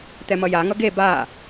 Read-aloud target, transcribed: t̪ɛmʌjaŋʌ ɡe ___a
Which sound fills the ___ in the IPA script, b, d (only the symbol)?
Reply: b